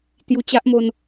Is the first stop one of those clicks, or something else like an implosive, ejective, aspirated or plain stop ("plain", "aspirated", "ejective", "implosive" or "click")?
plain